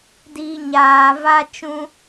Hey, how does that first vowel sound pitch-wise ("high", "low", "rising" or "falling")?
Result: low